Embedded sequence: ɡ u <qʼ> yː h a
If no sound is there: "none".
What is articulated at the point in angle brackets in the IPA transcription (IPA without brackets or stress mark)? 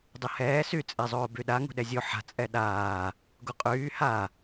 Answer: qʼ